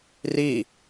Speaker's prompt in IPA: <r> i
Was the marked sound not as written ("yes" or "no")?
no